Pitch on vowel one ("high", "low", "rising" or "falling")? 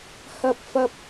high